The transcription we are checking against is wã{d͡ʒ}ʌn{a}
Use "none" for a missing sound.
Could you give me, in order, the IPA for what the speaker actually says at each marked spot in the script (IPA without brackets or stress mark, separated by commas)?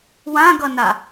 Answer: ɡ, a